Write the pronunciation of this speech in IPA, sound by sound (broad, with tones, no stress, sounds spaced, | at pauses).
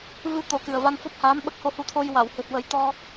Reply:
v ɨ˧ t̪ o˨˩˦ k ɨ˨˩ ə̯ v a˧ n f ɔ˦˥ p̚ h aː˧˥ m ɓ ə˦˥ k̚ h o˧ h u˧ t̪ʰ o˧ j w a˨˩˨ w h ɨ˨˩ t̚ w ə˨˩˦ j t̪ ɔ˧